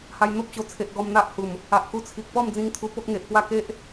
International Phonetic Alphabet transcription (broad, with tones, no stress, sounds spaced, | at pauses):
h a˧ j n̪ o˦ p̚ t͡ɕ o˨˩ t͡sʰ e˨ ʔ ɡ ɔ˧ m n̪ a˦ ʔ h u˨˩ m | a˨ ʔ k u˧ t͡sʰ i˨ k̚ p ɔ˥˧ m d͡z ĩ˧ ŋ t̪ʰ u˧ p o˦ k̚ ŋ e˨ ʔ p w a˥˧ k e˦ ʔ